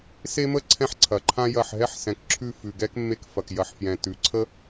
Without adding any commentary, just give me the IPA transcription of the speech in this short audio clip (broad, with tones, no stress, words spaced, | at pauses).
se˦mə˦ ǀʰɛ̃˦ħǀʰɐ˩ǃʰã˦ jɐ˧˩ħɦɛ˦ħsɛ̃˩kǁʰʉ˧˩ fʉ˩ɡɛ˦k mːe˧˩kfɐ˩k jɐ˩ħfjɛ̃˩ tʉ˩ǀʰə˦